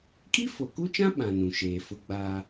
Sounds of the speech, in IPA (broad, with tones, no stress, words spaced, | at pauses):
kʼi˦fo˨ku˦t͡ʃã˦ ɓã˨ nũ˨ʃeː˨fʊ˦ɡ͡baː˦